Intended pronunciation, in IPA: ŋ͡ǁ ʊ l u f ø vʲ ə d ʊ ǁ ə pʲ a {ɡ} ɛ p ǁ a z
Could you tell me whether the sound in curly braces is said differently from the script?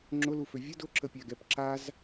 no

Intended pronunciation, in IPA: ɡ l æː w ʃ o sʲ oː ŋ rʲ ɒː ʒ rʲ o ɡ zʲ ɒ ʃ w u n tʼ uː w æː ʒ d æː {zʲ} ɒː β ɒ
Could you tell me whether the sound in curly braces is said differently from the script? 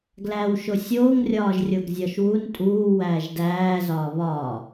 yes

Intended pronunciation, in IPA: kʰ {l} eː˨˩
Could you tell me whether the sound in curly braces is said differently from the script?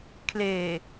no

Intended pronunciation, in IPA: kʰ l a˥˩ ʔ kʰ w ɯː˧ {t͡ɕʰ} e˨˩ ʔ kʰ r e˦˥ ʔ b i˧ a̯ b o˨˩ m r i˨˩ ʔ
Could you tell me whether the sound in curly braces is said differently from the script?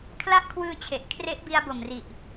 no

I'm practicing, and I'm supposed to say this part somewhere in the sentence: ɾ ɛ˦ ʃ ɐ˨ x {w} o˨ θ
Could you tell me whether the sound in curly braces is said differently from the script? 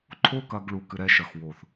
no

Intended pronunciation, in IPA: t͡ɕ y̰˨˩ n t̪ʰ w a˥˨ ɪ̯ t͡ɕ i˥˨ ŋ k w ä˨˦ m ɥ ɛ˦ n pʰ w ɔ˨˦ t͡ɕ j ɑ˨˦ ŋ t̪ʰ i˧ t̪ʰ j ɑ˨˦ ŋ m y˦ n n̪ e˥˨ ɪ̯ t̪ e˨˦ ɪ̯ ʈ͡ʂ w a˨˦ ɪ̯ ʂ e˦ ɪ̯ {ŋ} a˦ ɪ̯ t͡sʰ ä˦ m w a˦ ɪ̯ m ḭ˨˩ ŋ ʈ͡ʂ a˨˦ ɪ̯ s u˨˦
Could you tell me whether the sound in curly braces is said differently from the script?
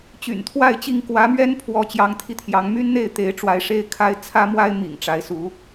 yes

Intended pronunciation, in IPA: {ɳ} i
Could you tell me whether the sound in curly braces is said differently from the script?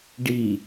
yes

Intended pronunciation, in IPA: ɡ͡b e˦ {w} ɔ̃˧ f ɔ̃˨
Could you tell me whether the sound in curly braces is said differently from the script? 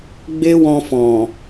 no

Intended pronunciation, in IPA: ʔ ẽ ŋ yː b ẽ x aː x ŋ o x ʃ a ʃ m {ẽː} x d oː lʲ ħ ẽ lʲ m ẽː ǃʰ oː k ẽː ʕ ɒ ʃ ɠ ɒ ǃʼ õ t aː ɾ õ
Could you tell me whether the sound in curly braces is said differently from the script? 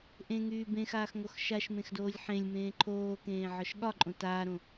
yes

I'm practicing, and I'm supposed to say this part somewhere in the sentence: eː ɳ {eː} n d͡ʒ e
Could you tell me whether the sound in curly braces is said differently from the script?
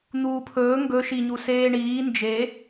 yes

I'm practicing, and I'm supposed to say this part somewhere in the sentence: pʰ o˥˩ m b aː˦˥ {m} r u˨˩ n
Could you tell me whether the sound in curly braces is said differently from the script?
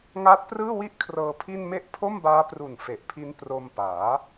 yes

